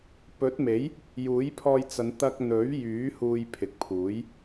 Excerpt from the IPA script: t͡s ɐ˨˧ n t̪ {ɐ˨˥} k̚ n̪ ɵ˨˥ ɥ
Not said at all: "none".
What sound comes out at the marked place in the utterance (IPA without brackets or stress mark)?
ɐ˧